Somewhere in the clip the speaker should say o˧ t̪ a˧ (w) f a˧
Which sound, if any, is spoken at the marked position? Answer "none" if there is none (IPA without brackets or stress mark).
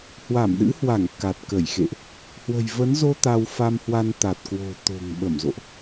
w